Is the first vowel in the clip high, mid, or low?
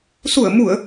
high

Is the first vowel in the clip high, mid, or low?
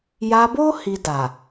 low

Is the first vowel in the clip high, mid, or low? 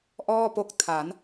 mid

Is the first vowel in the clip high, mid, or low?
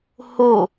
high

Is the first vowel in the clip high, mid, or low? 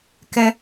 mid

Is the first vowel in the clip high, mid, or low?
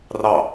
low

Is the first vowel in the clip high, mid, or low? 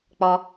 mid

